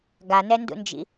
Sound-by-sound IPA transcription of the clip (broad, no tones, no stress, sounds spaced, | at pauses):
ɡ a n ɛ n d ṵ n d͡ʒ ḭ